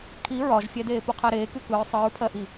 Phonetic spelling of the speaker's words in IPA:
kʰ i ɹ ɒ ʒ fʲ ɛ d eː p u qʰ ɜ ɾ eː k y k ɯ ɹ sˤ ɯ ɹ pʰ ɜ ʔ i

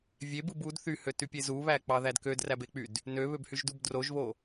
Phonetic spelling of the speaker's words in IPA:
vʲ e b ɯ b u d θ y h ø t y pʲ e z u β æ k͡p ɑ ð æ d k ø d r æ b e k͡p y d | n ø β ø b h y ʒ d u b d r o ʒ β o

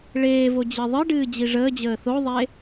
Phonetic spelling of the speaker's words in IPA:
ɭ eː v o d͡ʑ i ðˤ ɨ ɖ ɨː d͡ʑ i ʐ əː d͡ʑ əː θ o ðˤ e

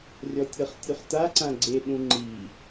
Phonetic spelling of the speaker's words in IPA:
rʲ ɔ tʲ ɤ χ tʲ u χ t a ǀ ã ɡ͡ǀ e ɗ ũ ŋ͡ǃ i

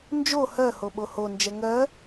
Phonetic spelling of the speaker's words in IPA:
n d͡ʒ o h ɜ h o ɓ o h o n d͡ʒ ɛ ŋ ɜ

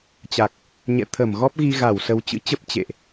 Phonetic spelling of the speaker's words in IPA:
t͡ɕ a˨˩ k̚ | ɲ ɛ̰˧˨ t̪ʰ ə˧˩ m ɣ ɔ˦˥ p̚ ɣ i˧ ɣ a˧˩ w s ə˨˦ w t͡ɕ ɨ̰˧˥ t͡ɕ ə˦˥ p̚ t͡ɕ ḛ˧˨ ʔ

